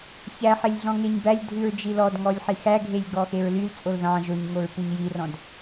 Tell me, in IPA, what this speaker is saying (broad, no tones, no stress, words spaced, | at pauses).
çæħelʲ ɮɔ̃ŋeɲbælʲdʱʉɹ d͡ʒilɔdŋɔlʲ ħixæɡʱelʲ ɡɔxeɹlylt͡sʼol ðɑ̃ ʒoɲŋoɹ puɲjirɔ̃d